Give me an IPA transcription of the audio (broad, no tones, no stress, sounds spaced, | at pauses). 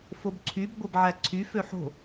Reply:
f o b ǀʰ y b ɡʷ e b ʕ æ ǀʰ y f ø ħ o̤